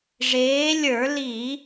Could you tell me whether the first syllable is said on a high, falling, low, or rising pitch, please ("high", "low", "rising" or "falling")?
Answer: rising